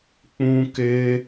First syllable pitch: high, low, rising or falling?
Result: high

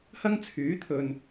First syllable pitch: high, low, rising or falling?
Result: high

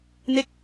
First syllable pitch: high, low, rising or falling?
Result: falling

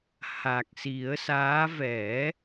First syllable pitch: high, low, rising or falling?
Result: low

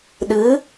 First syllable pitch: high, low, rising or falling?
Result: rising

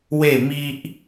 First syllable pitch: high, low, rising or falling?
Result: falling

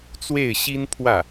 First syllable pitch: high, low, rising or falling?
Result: falling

